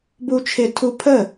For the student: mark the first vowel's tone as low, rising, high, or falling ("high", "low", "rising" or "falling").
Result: high